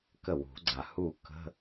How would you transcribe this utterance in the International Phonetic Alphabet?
kə˥˩wṳ˨˩˦ɡ͡ǀa˨˩hu˥˩ kə̤˧˥˧

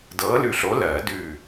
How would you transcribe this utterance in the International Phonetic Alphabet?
dɤː˨˥lʉ˧˩ɬo˨˥ lɜː˨˩˦dʉː˧˩

